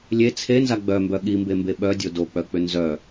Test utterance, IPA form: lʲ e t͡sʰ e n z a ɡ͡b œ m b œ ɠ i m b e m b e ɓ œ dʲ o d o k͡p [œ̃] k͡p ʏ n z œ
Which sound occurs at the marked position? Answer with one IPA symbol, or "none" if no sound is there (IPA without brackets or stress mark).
œ